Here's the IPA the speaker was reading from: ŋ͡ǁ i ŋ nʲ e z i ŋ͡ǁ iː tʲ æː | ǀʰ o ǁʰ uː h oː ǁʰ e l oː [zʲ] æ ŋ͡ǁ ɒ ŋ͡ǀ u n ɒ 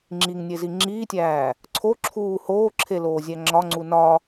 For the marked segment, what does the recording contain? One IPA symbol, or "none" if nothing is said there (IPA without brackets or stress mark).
zʲ